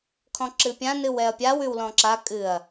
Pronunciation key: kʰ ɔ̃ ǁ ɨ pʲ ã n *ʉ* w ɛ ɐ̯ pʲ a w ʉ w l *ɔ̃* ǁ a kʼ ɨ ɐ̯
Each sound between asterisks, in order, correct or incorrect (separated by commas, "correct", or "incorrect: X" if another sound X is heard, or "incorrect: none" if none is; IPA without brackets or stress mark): incorrect: ɨ, correct